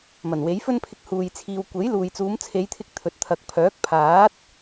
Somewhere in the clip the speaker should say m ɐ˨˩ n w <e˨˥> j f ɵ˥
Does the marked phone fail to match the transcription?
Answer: no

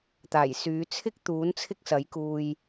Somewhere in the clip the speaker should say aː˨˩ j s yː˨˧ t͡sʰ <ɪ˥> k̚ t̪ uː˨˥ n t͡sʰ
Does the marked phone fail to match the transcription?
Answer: no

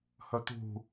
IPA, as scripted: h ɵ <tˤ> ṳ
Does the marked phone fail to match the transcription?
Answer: yes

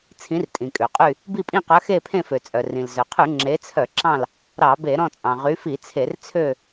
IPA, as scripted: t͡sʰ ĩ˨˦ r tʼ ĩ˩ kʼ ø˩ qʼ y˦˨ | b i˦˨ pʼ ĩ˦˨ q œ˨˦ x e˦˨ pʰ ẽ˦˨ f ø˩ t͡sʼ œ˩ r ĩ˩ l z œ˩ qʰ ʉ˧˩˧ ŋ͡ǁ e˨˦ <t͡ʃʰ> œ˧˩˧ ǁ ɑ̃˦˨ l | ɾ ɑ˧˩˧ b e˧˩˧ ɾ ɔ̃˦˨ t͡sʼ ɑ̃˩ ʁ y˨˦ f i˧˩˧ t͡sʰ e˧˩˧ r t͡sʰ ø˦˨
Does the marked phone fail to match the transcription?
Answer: yes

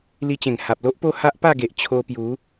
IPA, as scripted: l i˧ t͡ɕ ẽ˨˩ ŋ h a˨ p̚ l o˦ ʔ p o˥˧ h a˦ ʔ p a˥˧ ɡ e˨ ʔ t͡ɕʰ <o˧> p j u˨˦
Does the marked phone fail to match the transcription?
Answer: no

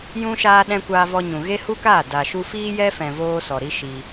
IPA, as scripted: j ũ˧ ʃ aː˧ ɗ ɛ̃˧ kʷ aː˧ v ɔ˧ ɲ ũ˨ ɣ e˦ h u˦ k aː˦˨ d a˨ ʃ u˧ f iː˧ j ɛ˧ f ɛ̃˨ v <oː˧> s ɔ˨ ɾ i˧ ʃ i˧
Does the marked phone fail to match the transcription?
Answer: no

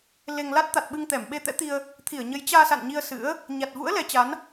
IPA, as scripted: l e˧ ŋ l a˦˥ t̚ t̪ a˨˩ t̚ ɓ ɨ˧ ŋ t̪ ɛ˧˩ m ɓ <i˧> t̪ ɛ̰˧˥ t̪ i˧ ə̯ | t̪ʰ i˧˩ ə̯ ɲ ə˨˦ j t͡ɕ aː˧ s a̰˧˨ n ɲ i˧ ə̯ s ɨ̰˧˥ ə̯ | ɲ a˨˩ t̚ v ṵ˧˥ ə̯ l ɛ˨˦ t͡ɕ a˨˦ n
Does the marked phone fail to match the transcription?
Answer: yes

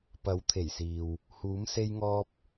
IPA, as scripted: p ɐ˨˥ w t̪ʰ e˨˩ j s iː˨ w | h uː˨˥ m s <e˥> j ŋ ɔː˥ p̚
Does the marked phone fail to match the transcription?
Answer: no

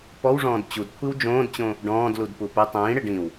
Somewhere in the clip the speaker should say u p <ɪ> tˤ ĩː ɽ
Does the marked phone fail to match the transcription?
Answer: no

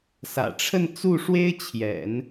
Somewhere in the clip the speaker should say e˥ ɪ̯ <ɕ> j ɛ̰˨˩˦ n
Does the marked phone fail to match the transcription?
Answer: yes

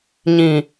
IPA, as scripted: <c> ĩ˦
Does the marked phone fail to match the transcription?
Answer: yes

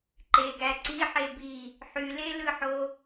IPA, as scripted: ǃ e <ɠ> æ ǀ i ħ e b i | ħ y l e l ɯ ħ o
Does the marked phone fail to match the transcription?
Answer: yes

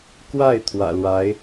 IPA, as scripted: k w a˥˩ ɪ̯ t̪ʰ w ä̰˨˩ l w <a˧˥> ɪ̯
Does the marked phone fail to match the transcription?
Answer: no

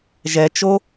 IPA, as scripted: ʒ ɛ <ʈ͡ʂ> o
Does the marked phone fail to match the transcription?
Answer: yes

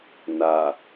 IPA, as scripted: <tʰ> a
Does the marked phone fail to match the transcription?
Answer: yes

